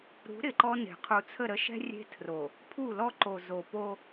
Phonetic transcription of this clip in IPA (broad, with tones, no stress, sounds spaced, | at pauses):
ɾ ṳ˨˦ ɾ ɪ˨ ǃ ɔ˦ n e̤˨ qʰ u˨ t͡sʰ ə˦˨ ɾ ə˦ ʃ ɛ̤˦ rʲ e̤˦ tʰ r o˨ | pʰ u˦˨ l ɔ˦ ǃ o˨ z o˨ p o˦